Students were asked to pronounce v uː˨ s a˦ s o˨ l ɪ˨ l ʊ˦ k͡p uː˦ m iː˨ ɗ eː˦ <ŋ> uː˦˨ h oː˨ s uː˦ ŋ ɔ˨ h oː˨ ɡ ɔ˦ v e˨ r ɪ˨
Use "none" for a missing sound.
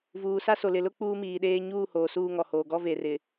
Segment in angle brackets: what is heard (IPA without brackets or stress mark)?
ɲ